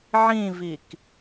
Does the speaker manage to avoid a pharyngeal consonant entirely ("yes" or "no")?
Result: no